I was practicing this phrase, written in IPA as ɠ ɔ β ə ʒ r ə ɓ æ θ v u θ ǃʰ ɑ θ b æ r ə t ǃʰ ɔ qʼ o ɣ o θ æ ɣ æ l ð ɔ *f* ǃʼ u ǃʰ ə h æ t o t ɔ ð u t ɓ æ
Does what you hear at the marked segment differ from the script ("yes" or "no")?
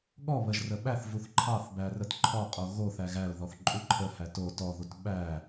yes